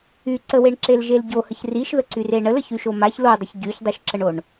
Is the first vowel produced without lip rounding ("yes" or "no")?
no